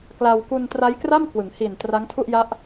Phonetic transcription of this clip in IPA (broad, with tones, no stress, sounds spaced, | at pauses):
k l a˧ w k u˧ n t r a˦˥ j k r a˥˩ m k w ɯ˩˦ ŋ h i˨˩ n t r a˦˥ ŋ tʰ u˥˩ ʔ j a˦˥ ʔ